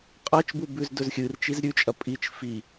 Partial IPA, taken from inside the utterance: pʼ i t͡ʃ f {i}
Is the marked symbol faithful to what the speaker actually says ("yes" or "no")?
yes